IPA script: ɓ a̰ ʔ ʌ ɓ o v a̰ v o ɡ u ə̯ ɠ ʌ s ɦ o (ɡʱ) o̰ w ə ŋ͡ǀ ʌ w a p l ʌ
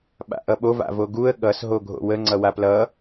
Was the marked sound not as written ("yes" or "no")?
no